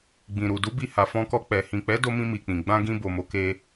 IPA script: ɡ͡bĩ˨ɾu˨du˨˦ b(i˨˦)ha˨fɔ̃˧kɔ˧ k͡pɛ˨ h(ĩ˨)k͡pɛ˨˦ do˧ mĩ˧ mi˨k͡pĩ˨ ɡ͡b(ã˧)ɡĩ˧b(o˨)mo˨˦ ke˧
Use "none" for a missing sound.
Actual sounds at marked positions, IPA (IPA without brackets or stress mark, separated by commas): i˧, ĩ˨, ã˧, o˨